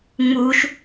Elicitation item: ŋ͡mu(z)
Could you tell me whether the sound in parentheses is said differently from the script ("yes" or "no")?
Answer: yes